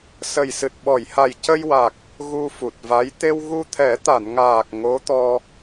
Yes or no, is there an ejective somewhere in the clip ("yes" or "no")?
no